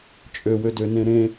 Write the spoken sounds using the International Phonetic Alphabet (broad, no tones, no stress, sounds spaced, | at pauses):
t͡ʃʼ ø w ø d ø n ẽ ɾ ẽ